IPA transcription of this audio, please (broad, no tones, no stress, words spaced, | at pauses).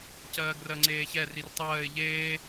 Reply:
cɜːɡrɜŋ͡ǀeːçɛ rirtˤɜːɪ̯ ʎeː